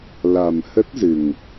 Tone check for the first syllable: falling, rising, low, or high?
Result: low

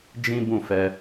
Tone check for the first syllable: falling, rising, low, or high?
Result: high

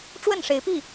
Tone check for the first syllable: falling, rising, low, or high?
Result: falling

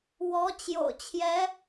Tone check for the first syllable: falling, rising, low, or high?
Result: rising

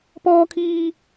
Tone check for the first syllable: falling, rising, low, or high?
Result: high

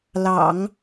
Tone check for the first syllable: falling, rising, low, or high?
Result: low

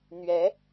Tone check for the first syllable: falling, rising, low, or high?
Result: rising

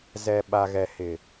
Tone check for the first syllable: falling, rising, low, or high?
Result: low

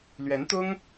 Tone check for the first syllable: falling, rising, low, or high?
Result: rising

